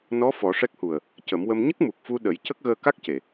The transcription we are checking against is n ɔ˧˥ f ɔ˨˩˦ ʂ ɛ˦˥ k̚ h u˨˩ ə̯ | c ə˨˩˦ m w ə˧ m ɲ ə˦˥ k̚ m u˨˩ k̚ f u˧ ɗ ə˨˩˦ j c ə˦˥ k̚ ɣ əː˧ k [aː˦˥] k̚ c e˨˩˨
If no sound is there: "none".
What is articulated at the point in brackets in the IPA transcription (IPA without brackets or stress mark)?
a˦˥